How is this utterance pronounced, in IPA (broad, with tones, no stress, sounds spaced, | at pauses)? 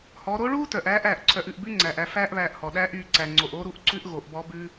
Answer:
h ɔ˩˧ ɾ o˧˥ ɭ uː˥ t œ˩ ʔ æː˧˥ ʔ æː˩ ʔ ǀʰ œ˩˧ ʔ ʉ˩ ʔ b ʉ˥ ŋ͡ǀ æː˩ ʔ æ˩˧ f æː˥ ʔ β æː˧ ʔ h ɔ˩ ɗ æː˧˥ ʔ yː˩˧ ǀ æ˩ ŋ͡ǀ o˩ ʔ o˥ ɾ u˥ ʔ ǀ ʉ˥ ʔ ɣ o˩˧ ʔ b ɔ˧˥ b ʉ˥